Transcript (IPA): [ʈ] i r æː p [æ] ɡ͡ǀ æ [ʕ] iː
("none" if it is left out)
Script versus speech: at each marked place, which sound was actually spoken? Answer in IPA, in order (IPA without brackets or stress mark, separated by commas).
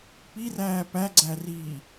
p, æ, r